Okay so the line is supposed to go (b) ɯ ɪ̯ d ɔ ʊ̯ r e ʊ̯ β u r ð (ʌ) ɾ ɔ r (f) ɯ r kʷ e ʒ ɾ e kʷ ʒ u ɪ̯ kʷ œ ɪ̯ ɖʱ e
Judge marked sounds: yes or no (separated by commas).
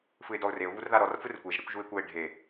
no, no, yes